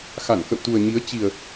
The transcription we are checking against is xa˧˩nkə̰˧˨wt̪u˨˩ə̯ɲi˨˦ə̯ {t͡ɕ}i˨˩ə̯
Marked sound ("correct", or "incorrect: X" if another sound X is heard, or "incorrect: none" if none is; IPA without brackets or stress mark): correct